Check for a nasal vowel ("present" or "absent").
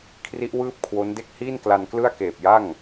absent